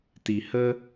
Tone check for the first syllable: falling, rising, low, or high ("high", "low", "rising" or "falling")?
low